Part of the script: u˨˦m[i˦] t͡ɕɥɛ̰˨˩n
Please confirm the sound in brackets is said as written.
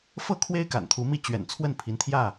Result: yes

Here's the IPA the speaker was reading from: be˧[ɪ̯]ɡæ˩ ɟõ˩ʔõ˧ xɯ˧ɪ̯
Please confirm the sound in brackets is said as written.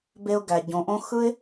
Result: no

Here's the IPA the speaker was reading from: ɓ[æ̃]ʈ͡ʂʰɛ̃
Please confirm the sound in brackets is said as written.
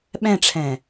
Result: no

